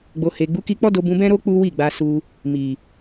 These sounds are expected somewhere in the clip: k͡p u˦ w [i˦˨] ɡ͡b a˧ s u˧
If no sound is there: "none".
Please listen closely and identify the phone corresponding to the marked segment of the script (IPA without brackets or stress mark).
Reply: i˦˨